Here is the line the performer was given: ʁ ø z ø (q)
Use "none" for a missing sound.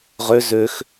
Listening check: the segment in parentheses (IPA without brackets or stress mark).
x